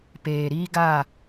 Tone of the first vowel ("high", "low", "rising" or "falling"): low